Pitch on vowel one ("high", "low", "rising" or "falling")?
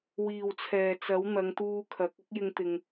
low